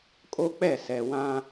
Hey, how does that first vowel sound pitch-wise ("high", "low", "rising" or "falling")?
high